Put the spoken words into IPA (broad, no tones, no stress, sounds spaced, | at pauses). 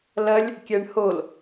l ɐ lʲ | kʲ ɛ ɳ h o l